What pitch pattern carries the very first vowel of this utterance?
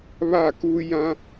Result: falling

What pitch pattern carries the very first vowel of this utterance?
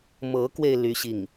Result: rising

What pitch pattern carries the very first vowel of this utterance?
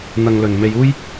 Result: low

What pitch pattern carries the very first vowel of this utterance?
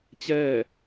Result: falling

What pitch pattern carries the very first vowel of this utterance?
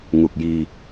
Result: low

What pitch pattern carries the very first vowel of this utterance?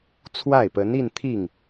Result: falling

